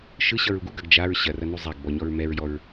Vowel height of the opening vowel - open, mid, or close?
close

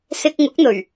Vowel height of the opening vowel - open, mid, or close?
close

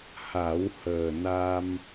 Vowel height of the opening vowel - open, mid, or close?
open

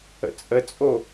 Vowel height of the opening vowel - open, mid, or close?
mid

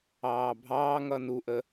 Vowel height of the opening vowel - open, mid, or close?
open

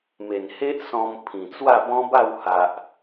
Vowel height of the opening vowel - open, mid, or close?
mid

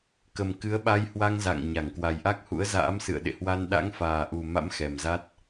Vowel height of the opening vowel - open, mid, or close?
mid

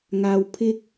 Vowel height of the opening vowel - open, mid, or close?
open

